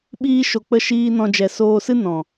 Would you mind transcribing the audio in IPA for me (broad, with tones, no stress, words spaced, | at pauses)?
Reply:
ɓiː˦ʃo˧k͡pə˦˨ ʃiː˧ nɔ̃˧ d͡ʒɛ˨soː˧sɨ˦ nɔ̃˨